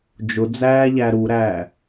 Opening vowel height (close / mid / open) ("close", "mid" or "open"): close